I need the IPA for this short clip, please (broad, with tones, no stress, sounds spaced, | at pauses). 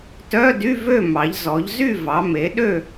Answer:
t œ˧˥˧ d y˧˥˧ v ø˥˨ m ɑ˩˧ ʎ z ɔ˩˧ ʎ z y˥˨ v ɑ˩˧ m e˩˧ ɗ ø˥˨